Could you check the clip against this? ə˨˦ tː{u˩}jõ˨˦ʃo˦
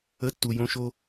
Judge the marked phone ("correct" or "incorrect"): correct